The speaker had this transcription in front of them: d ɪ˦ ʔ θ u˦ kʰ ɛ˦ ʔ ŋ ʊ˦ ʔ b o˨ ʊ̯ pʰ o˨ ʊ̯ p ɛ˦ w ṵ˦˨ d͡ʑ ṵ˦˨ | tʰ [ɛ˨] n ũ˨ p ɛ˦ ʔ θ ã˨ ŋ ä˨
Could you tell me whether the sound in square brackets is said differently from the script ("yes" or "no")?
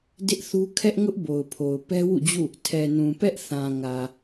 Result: no